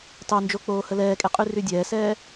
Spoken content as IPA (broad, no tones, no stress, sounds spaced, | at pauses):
tˤ y n d͡ʒ o k͡p oː h ə l ɛː kʼ e qʼ y r y dʲ ɛː s ɛː